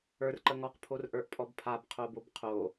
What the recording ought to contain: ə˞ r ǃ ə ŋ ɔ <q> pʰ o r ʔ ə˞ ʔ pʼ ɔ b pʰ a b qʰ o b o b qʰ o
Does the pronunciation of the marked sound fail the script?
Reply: no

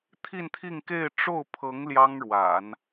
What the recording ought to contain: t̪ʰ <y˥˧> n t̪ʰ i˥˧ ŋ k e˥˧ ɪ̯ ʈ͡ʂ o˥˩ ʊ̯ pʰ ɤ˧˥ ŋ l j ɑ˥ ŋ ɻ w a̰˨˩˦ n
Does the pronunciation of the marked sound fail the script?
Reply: yes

